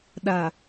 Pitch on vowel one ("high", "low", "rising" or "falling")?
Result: low